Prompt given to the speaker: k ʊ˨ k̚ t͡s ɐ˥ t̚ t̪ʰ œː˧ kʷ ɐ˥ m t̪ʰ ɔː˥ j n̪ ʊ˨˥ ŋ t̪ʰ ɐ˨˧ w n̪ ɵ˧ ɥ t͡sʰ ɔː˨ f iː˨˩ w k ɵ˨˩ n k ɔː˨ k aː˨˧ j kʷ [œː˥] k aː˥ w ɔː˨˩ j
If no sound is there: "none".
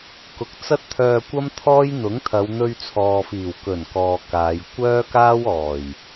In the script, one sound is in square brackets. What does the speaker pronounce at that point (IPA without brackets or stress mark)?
œː˥